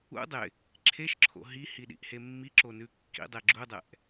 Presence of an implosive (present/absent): present